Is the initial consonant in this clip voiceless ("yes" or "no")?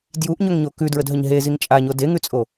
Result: no